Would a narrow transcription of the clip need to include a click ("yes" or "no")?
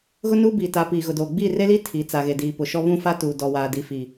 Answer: no